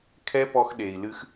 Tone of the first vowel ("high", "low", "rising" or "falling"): high